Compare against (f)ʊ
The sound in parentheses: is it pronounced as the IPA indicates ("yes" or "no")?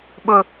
no